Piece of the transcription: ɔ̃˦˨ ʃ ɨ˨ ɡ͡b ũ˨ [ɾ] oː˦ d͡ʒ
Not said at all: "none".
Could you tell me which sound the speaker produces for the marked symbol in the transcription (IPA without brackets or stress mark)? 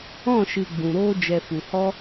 ɾ